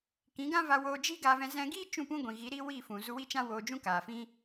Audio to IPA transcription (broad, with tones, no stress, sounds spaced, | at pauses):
k ĩ˨˦ ɡ ã˦ v a˧ w oː˧ d͡ʒ i˦ ɡ aː˧ v ɛ̃˧ z ɛ̃˧ ɡ iː˦ t͡ʃ ũ˦˨ p ũ˦ ɡʷ ĩ˨ ɣ i˨˦ ɾ i˦ w iː˦˨ f ũ˨ z u˧ w i˦ t͡ʃ ã˦ w oː˧ d͡ʒ ũ˦ k aː˨ f ĩ˦